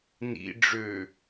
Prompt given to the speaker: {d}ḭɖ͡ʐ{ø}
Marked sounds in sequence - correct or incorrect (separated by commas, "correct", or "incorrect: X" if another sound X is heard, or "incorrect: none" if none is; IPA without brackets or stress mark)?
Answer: incorrect: n, correct